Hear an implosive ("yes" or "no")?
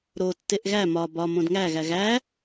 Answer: no